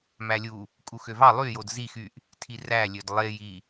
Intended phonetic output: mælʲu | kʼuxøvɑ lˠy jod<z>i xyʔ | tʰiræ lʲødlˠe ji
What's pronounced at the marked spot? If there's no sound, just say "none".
z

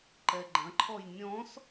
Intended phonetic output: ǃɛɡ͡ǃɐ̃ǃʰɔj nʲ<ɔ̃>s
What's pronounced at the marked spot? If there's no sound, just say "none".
ɔ̃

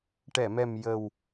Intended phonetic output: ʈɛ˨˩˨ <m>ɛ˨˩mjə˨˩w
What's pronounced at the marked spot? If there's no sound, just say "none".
m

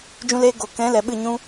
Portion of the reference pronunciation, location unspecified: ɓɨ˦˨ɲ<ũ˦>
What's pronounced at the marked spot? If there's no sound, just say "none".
ũ˦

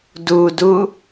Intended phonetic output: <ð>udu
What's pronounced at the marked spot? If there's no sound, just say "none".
d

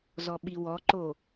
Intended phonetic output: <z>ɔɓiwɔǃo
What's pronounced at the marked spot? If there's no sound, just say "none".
z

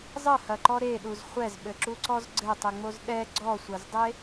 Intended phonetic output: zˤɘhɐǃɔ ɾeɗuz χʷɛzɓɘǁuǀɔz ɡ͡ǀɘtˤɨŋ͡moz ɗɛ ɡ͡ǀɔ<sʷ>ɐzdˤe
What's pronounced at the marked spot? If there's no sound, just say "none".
sʷ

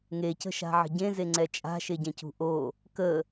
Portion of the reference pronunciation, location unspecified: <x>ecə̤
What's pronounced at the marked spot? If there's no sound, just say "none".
ŋ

